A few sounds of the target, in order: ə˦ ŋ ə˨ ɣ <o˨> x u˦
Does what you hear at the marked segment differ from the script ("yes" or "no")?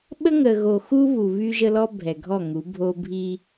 no